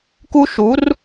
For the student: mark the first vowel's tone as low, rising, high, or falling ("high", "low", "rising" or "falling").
high